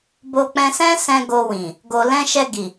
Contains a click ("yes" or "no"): no